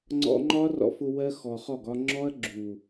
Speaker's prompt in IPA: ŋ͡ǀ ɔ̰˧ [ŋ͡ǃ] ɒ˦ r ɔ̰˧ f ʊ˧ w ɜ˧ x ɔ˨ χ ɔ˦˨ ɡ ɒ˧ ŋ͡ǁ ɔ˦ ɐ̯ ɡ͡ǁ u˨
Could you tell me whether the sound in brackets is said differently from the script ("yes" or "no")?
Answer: no